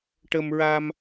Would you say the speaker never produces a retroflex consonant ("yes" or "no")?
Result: no